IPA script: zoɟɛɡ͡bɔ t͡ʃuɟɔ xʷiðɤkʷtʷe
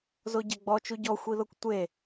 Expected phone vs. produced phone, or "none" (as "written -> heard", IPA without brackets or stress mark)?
none